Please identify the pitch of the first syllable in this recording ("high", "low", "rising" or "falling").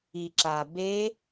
low